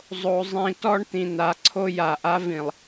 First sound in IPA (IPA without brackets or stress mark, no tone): zˤ